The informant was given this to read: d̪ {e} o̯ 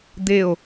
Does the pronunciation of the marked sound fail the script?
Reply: no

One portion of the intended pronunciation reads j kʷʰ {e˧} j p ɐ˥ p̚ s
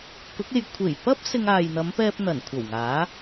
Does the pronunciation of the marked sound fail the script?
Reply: yes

